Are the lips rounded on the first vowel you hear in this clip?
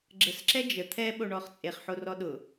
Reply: no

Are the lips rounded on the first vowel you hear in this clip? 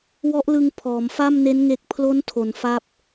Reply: yes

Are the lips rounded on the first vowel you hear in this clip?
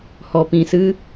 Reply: yes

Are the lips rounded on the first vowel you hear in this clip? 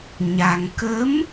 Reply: no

